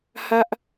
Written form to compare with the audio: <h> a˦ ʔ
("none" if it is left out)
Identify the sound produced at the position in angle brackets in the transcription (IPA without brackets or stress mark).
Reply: h